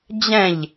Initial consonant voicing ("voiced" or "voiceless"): voiced